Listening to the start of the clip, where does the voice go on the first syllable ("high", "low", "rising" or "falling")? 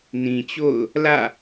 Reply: low